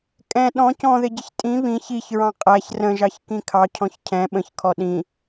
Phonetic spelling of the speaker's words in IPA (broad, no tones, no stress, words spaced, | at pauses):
kʼɛ̃ ɗɔ̃ cɔ̃ðɪɟɪç tʼĩ βĩ çiç ɹɑ̃qʼæç rə̃ʒɑç kĩkʰɑ cʰɔ̃çcʰɛ̃ ɓə̃çkʰɔ ɗĩ